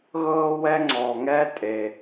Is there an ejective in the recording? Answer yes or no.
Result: yes